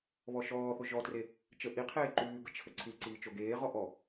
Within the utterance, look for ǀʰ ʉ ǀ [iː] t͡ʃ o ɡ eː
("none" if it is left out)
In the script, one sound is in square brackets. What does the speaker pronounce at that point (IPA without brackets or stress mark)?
iː